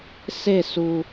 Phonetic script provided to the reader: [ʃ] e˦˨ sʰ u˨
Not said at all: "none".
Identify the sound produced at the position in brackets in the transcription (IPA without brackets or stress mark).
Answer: s